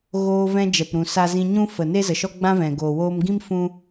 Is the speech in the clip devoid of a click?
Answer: yes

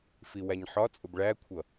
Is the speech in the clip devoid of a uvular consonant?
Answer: yes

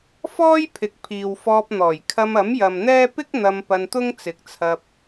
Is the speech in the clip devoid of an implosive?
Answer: yes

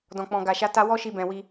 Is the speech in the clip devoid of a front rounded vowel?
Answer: yes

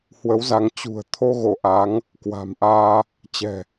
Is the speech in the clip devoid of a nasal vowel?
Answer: yes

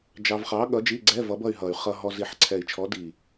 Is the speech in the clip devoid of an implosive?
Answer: no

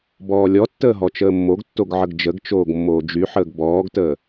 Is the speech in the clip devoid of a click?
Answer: yes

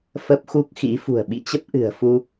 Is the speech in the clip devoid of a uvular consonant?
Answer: yes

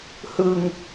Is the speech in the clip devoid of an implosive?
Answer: yes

